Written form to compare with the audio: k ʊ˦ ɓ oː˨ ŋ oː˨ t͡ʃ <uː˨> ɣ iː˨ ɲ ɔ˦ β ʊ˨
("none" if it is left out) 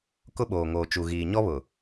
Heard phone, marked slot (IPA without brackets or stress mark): u˨